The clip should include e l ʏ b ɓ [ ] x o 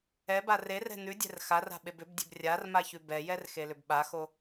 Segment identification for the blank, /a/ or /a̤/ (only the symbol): a